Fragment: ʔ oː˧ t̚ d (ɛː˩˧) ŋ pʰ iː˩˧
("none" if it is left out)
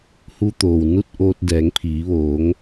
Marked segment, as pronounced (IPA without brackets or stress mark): ɛː˩˧